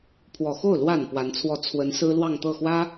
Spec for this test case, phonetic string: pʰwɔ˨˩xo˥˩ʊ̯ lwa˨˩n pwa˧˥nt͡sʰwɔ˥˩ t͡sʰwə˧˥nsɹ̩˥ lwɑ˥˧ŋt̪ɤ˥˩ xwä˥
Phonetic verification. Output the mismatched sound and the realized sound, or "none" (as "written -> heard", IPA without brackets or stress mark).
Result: none